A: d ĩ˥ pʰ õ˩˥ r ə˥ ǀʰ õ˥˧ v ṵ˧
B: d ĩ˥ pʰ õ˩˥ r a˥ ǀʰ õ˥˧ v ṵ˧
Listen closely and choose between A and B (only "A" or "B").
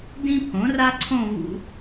B